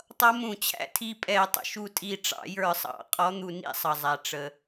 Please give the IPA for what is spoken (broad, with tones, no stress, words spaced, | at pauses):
tˤʌ˧˥mũ˧˩˧t͡ɕʰæ̰˧˥ tʰi˦˨pʼɛ˧˩˧ tˤə̰˩ʃu˦˨tʼi˦˨ ʈ͡ʂɑ̰˧˩˧jə˞˧˩˧sˤɑ̰˧˩˧ qʼɔ˧˥n̪u˧˩˧nḭ˧˥ sˤʌ˩zˤæ˩ ʈ͡ʂə˩